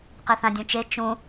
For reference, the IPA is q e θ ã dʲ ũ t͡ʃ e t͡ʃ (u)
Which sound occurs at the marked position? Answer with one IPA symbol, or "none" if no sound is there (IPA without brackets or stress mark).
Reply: ũ